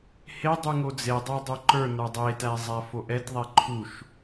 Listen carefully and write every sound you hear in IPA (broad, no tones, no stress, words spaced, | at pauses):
hedˤu ŋod͡zedˤɛ dˤoǃə˞nə˞ dˤetæ zˤæfoʔɛtðˤɛ ǃʰuʃ